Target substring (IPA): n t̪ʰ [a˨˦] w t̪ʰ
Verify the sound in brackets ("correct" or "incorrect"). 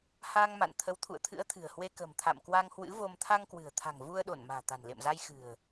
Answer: incorrect